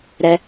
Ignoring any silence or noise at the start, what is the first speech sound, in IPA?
ɾ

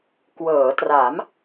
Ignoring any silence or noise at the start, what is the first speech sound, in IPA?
k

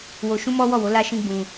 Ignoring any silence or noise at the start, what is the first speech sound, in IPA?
w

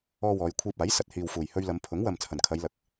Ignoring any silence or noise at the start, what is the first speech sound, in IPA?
ɔː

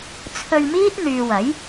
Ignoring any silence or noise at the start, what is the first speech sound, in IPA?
t͡sʰ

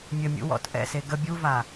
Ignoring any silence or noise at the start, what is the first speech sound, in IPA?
mʲ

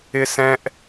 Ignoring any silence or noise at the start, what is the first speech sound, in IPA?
ɪ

